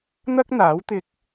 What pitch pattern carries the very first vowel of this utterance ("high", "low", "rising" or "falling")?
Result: high